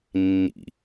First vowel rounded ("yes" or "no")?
no